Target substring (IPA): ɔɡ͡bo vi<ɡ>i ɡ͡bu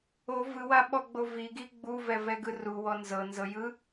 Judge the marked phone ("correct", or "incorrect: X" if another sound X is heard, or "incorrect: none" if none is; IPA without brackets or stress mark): correct